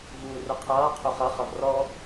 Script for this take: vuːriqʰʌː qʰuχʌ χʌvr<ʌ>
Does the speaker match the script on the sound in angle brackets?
no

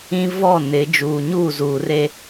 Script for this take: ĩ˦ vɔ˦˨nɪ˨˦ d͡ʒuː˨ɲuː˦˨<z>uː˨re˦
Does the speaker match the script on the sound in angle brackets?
yes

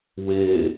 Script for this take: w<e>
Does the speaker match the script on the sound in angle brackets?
yes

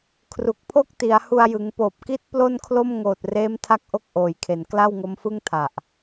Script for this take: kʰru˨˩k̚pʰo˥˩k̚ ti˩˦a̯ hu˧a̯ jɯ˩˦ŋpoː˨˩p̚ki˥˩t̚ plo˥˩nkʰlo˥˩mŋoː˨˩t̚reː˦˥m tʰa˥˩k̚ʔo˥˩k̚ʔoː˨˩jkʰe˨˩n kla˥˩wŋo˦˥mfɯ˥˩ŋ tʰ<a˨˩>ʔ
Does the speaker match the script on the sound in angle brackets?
yes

